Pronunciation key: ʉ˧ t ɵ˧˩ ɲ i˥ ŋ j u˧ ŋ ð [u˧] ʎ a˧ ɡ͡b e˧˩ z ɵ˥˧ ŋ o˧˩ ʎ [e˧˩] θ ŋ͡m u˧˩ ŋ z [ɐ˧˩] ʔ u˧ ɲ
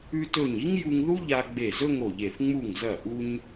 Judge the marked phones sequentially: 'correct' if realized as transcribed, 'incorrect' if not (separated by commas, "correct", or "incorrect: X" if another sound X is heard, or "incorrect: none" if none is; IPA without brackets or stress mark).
incorrect: u˥, correct, correct